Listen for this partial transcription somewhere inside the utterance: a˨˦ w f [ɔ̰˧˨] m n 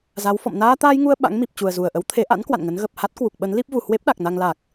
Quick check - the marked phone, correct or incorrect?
correct